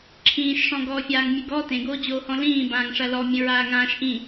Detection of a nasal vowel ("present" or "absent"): present